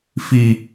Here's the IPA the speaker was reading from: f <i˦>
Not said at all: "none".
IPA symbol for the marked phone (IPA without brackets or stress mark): i˦